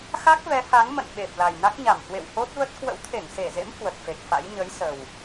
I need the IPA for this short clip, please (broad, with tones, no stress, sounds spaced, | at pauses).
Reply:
x a˦˥ k̚ v ɛ˨˦ h a˨˦ ŋ m ə̰˧˨ n ɓ e˨˩ p̚ l a˨˩ j n a˦˥ k̚ ɲ a˧˩ m h w ḛ˧˨ w h o˦˥ t̚ v ə˦˥ t̚ k w ə̰˧˥ w t̪ʰ e˧˩ ŋ s e˧˩ z ḛ˧˥ m h w ə˨˩ t̚ f e˨˩ k̚ f a̰˧˥ j ɲ ə˨˦ j s ə˨˩ w